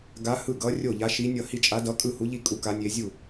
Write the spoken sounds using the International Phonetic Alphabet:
ɡ a˧˥ h ɯ˥˩ ɡ ʌ˧˥ rʲ o˥˩ ʎ a˧˥ ʃ i˧˥ nʲ ʌ˥˩ h i˥˩ t͡ʃʼ a˧˥ d ʌ˧˥ kʼ ɯ˥˩ h u˧˥ ʎ i˥˩ kʼ u˧˥ k a˧˥ nʲ e˧˥ zʲ u˥˩

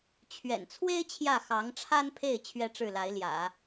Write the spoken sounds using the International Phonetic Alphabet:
t͡ɕʰ ɥ ɛ̰˨˩ n t͡sʰ w e˥ ɪ̯ t͡ɕʰ j ä˥˩ x ɑ˧˥ ŋ ʈ͡ʂʰ a˥ n pʰ e˥˩ ɪ̯ t͡ɕʰ ɥ ɛ˥ ʈ͡ʂ ɻ̩˥˩ l a˧˥ ɪ̯ l j ä̰˨˩˦

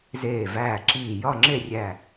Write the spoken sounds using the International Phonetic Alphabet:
z eː˧˩ v æː˧˩ ǁ iː˧˩ j ɒ˥˧ ŋ͡ǁ e˥˧ rʲ æ˧˩

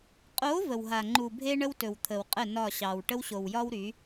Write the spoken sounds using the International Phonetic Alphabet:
qʼ o˨˦ v ə˨ w ɦ a˨ ŋ͡ǃ u˨ bʱ e˦ ɳ ə˦ w t ɵ˨ w t̪ʰ ə˨ w qʼ ə˦˨ n ɒ˦˨ ɕ ɑ˨ w ʈ ə˦ w ɕ o˨ w j ɒ˦ w ɾ y˨˦

